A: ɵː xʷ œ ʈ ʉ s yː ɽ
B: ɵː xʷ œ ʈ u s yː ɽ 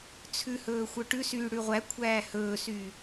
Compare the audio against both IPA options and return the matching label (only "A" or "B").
A